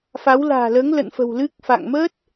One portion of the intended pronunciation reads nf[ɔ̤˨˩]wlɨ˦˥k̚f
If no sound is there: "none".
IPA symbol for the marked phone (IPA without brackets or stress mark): ə̤˨˩